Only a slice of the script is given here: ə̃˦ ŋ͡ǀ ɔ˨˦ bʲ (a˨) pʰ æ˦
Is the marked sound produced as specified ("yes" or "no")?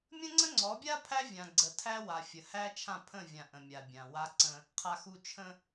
no